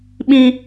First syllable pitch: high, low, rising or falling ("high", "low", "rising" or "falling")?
high